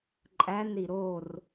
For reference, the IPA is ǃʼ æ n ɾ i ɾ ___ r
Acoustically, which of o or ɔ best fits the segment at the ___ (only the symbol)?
o